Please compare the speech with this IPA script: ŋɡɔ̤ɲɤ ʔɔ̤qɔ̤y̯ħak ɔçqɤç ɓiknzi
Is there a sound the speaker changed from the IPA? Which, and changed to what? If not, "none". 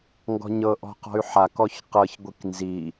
ɓ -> ɡʷ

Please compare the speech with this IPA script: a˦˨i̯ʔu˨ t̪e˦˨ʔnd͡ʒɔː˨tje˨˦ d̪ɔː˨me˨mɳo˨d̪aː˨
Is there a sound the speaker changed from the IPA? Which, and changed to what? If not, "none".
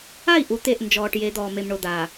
t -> ʈ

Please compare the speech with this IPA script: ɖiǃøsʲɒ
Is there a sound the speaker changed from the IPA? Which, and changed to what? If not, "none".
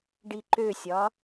none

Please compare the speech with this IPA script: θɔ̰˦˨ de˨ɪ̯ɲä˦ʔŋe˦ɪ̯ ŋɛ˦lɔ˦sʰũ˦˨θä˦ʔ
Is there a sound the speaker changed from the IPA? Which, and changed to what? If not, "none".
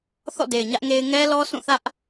none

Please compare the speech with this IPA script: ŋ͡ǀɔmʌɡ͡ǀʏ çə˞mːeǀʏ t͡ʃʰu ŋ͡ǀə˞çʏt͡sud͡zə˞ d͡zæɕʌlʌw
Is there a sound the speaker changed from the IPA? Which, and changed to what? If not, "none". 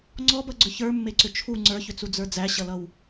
m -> b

